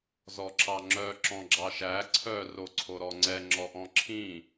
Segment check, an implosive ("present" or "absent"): absent